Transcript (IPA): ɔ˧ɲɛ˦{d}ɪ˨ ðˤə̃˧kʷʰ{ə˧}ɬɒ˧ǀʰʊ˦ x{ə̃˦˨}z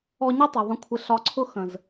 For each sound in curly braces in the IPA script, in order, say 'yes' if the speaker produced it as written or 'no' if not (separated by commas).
no, no, no